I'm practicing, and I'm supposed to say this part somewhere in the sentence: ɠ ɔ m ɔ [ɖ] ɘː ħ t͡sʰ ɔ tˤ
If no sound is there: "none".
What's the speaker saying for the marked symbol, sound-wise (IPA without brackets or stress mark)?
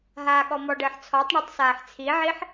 ɖ